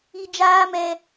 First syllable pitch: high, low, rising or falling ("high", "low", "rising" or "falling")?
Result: high